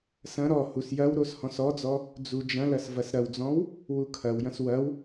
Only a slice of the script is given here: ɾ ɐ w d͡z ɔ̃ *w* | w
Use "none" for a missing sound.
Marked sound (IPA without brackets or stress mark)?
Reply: w